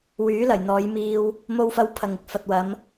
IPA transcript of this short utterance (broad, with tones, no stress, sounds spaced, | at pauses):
w yː˨˥ l ɐ˨˩ j n̪ ɔː˨˧ j m iː˧ w | m o˧ w f ɐ˧ w pʰ ɐ˨ ŋ ɪ˧ k̚ f ɐ˨ t̚ w ɐ˨˧ m